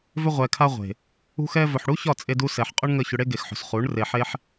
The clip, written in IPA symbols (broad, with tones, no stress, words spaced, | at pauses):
vʏ˧ʁʷɛ˨kʰa˧ʁʷe̤˨ | ṳ˧xɛ˧vɵ˨ħɽu˦ çɒ˦˨t͡sʼe˧du˧ sɛ˨ħqʼɵ˦ɳŋə˦˨ çʏ˧ɽe˦ɡe˨xħo̤˨s χu˨˦ɳre˧ħe˦ħ